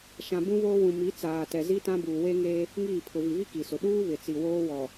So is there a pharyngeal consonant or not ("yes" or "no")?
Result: no